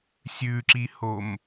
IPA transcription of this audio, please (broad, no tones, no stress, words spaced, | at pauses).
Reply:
sʲʉǁihom